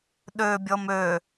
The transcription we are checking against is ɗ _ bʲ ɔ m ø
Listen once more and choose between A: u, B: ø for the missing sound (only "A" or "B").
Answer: B